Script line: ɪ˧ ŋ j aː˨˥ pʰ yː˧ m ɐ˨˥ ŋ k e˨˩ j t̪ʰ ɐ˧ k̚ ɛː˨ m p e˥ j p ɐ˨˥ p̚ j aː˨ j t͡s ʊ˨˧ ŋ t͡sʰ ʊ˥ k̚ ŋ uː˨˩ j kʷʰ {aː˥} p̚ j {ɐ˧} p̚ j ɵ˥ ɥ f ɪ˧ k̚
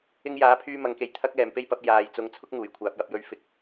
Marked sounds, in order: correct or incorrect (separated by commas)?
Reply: incorrect, correct